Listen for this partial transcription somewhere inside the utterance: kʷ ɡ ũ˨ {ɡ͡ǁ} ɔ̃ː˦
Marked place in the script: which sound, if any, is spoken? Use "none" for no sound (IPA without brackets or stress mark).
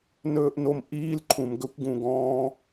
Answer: ɡ